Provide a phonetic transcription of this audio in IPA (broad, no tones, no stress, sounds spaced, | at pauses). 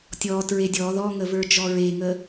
tʲ ɔ t ɹ e dʲ ɔ ð ɔ ŋ ə v ə˞ d͡ʒ ɔ ɹ e ŋ ə